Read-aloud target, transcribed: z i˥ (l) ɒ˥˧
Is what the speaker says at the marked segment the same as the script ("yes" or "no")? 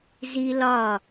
yes